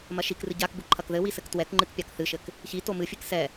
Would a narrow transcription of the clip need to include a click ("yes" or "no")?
yes